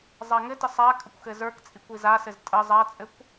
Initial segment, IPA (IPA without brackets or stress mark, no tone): zˤ